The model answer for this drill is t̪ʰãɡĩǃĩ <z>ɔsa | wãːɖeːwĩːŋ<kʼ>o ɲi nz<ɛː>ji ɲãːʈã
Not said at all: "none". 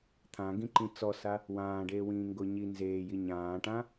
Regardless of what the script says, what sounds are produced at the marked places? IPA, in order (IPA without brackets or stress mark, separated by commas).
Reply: t͡s, ɡ, eː